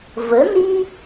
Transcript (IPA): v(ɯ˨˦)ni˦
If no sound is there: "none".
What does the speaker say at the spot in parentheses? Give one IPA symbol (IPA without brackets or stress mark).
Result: ə˨˦